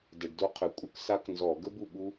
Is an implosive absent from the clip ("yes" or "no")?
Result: no